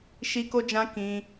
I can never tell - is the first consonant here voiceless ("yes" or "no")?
yes